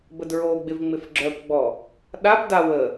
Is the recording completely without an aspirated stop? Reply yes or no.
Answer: yes